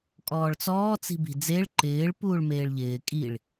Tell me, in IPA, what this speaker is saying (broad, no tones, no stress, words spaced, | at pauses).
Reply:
kʼɔːɭt͡sɔː t͡si̤bi̤d͡zeɭ ǃɪːɭ puːɭmeːɭʎɪː kʼiɭ